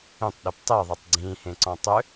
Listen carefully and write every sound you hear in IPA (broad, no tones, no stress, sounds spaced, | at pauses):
ẽ tˤ ɗ e p tˤ e ðˤ e tˤ ɡ͡ǀ ĩː h ẽ ǀ ɔ̃ tˤ ø